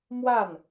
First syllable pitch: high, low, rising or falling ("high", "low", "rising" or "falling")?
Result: falling